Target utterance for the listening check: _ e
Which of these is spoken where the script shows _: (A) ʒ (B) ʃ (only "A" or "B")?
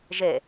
A